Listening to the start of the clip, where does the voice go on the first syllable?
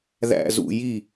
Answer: falling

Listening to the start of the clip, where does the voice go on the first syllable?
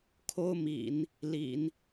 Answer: high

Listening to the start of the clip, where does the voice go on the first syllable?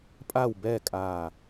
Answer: falling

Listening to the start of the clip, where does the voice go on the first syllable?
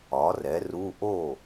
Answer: rising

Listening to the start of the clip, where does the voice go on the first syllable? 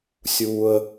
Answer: high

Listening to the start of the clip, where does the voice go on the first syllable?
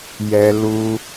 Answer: high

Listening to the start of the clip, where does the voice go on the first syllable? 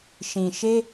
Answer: low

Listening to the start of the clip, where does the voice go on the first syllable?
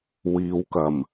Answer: low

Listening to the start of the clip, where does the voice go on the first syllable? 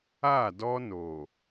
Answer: falling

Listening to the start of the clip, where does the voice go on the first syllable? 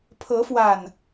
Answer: rising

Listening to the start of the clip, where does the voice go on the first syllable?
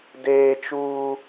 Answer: high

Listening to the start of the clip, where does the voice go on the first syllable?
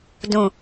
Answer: low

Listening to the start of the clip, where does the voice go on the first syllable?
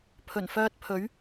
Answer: low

